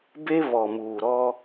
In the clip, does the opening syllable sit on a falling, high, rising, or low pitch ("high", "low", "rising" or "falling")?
high